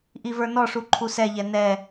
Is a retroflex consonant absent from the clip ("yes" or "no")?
no